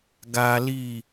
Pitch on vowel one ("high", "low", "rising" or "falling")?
high